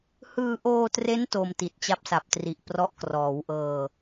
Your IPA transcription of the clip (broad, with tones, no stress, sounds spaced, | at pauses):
h ɯː˧ ʔ oː˧ t r e˦˥ n t o˧ m t i˨˩ t̚ t͡ɕ a˦˥ p̚ s a˨˩ p̚ t r i˨˩ ʔ p r ɔ˦˥ ʔ k r ɔː˩˦ w ʔ ɤː˧